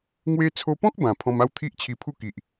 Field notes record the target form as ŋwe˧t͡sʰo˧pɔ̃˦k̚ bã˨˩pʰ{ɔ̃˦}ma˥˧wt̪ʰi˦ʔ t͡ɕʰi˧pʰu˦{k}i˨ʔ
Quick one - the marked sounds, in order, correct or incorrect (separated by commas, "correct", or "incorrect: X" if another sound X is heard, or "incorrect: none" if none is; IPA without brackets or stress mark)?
incorrect: ɔ̃˧, correct